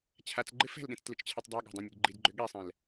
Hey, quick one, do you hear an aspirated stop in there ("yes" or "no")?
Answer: yes